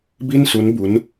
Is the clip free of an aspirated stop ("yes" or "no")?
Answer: yes